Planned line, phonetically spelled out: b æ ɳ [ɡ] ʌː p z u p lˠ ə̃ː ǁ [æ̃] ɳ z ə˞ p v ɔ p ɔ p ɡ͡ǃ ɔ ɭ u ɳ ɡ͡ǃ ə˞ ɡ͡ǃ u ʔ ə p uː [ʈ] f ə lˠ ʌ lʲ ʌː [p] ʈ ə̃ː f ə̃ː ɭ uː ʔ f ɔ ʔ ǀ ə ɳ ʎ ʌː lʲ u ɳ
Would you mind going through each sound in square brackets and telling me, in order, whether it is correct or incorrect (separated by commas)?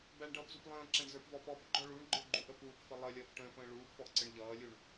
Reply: incorrect, correct, incorrect, correct